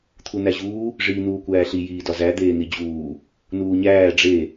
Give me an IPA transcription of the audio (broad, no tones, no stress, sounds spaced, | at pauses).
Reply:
t̪ʰ u n̪ æ ʑ uː | ʐ iː n̪ uː kʷ æː ɬ i j iː d ɒ z æ d̪ eː n̪ i d͡ʑ uː | n uː ɲ æː ɖ͡ʐ e